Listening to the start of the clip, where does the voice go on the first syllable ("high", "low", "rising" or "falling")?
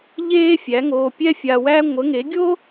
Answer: high